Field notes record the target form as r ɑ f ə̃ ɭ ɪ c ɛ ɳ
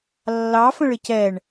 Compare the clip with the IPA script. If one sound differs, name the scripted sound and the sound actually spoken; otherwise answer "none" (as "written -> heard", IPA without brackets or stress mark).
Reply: r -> lː